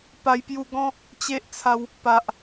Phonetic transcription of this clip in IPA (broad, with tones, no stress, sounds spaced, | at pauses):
p a˧ j p j u˧ ɡ ɔ̃˦ | t͡ɕ e˦ ʔ t͡sʰ a˧ w | p a˨ ʔ